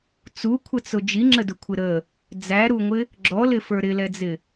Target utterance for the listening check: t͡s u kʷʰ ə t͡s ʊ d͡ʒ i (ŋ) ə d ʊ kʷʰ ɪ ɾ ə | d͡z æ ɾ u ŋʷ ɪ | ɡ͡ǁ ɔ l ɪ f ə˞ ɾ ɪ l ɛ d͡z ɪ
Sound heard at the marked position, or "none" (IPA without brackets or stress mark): ŋ͡ǁ